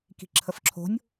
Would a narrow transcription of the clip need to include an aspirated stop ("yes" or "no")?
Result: yes